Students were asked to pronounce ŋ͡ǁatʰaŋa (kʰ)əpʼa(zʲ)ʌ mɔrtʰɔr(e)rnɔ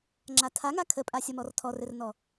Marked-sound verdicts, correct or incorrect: correct, incorrect: sʲ, incorrect: ɘ

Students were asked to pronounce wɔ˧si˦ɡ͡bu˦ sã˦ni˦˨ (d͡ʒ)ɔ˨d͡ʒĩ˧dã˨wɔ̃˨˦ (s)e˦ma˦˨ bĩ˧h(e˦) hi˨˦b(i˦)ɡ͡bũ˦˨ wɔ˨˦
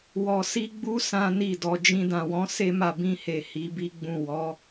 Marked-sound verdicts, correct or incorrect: incorrect: d, correct, incorrect: e˨, correct

